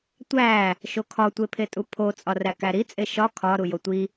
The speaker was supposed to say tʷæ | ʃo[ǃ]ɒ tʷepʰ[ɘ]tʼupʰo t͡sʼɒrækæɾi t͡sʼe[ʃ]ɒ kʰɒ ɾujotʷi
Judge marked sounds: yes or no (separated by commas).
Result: no, no, yes